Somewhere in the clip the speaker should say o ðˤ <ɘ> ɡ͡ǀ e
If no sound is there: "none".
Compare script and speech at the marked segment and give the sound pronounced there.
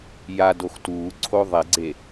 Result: e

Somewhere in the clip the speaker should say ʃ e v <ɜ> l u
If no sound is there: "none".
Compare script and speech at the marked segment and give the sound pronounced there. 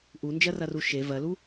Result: ɜ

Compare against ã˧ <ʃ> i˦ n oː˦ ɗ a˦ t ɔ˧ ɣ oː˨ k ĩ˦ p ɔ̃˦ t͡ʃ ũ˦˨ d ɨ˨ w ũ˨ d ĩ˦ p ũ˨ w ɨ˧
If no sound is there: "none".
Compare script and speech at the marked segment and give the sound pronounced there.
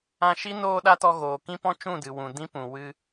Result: ʃ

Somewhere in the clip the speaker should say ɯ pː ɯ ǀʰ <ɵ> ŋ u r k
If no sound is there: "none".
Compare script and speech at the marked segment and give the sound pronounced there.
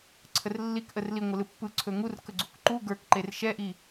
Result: ɵ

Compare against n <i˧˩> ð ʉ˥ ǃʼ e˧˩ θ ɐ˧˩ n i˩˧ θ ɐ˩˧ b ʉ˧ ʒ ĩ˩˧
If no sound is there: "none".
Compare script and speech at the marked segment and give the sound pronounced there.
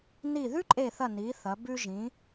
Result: i˧˩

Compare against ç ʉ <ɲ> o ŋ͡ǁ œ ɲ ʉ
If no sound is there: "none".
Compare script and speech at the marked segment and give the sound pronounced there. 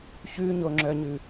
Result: ɲ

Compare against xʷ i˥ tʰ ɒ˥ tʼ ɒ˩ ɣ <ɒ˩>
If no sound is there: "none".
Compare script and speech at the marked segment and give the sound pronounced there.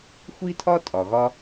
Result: ɒ˥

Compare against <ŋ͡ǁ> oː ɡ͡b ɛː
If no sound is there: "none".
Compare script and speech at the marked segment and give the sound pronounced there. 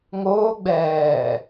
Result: ŋ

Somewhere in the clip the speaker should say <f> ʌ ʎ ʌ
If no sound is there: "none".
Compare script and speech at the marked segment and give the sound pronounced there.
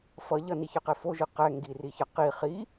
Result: f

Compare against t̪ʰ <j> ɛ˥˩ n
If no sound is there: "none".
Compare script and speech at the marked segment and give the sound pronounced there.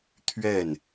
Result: ɥ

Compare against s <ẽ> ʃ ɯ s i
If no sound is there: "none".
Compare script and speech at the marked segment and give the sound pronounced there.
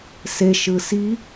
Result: e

